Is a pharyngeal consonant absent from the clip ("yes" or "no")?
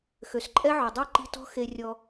no